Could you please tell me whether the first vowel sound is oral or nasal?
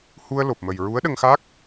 oral